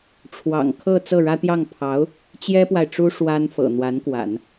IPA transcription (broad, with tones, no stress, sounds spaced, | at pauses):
ʈ͡ʂʰ w ɑ̰˨˩ ŋ kʰ ɤ˥˧ t͡s ɤ˥˩ ɻ ä˥ t̪ j ɑ˥˩ ŋ pʰ ɑ˧˥ ʊ̯ | t͡ɕ j ɛ˥ p w a˨ ɪ̯ ʈ͡ʂ u˥ ʂ w a˥ n f ɤ̰˨˩ n̪ w a˧˥ n k w a̰˨˩˦ n